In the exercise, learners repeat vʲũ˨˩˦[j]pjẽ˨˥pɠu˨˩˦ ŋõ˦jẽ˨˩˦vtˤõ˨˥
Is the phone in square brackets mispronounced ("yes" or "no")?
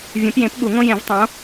yes